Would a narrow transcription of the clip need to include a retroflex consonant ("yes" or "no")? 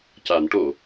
yes